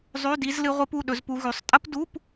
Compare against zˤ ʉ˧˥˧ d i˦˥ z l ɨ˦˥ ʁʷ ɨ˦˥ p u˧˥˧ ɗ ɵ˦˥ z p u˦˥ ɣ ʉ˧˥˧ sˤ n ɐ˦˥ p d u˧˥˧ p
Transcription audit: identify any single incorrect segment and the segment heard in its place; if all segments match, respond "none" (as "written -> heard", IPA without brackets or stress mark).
n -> tʼ